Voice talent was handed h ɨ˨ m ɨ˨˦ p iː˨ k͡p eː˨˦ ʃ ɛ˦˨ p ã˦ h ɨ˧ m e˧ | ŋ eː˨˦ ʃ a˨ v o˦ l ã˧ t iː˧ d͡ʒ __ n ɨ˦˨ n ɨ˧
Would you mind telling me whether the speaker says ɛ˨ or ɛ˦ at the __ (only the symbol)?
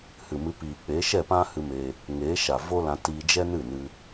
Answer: ɛ˦